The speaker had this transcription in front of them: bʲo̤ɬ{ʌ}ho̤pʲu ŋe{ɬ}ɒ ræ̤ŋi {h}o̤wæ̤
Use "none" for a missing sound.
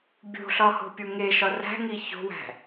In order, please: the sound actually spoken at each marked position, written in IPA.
ɒ, ʃ, ç

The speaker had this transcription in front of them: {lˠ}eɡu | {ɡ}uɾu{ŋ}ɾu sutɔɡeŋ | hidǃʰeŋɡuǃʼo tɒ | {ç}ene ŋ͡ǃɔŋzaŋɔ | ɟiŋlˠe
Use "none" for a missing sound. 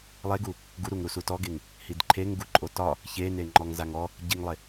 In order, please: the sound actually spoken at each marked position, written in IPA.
lˠ, ɡ, ŋ, ç

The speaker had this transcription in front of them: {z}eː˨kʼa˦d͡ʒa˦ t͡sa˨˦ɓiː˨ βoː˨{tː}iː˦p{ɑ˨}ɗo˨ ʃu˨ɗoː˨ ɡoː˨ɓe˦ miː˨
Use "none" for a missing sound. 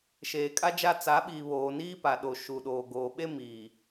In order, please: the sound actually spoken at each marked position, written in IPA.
ʃ, n, a˨

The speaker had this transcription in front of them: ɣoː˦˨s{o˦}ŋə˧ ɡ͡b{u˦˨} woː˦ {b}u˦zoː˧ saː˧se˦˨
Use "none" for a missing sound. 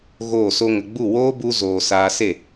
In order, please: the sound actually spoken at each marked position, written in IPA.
o˦, u˦˨, b

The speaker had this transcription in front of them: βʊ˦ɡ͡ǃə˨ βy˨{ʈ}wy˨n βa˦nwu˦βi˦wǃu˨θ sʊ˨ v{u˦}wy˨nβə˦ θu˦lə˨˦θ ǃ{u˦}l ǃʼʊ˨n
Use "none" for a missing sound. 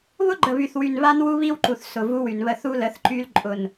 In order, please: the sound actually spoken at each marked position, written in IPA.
θ, u˦, y˦

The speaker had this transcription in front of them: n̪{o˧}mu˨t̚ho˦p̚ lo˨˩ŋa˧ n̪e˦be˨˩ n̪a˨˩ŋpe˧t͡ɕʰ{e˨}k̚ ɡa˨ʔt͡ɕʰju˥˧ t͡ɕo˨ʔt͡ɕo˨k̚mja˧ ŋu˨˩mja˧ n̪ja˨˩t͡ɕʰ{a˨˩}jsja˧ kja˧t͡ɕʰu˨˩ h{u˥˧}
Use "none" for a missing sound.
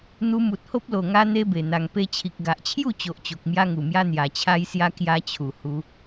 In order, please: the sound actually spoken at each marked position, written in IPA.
u˧, i˨, a˧, u˧

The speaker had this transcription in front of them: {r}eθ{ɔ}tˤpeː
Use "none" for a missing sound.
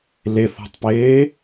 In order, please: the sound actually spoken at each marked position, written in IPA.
l, ɔ̤

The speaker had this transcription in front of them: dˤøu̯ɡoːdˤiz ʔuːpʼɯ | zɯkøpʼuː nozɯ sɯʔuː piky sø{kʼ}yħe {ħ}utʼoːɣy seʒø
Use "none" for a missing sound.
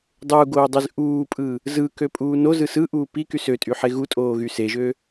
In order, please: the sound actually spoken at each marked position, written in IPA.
tʼ, ɣ

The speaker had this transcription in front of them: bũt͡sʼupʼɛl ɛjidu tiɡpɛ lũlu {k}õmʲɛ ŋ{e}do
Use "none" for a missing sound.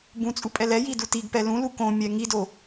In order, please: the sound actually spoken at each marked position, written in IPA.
k, i

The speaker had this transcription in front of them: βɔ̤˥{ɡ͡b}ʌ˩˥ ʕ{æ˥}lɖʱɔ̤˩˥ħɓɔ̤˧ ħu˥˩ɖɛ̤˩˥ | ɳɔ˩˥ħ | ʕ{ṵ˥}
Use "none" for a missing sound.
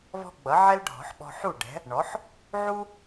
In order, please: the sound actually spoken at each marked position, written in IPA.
ɡ͡b, ɛ˥, u˥

